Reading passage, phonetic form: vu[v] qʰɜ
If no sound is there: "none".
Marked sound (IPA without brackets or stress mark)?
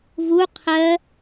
none